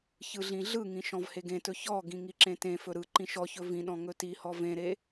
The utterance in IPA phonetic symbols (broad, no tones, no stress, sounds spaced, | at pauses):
ç ɯ ɮ ĩ ɮ ɯ ŋ ĩ ʃ ɔ̃ v h e ɡ ẽ t ɵ ç ɔ ɡ ĩ ŋ i ǁ ẽ t ẽ f ɵ ɾ ɯ ǃ ĩ ʃ ɔ ç ɵ v ĩ ɗ ɔ̃ ŋ ɵ t i h ɔ v ẽ ɾ e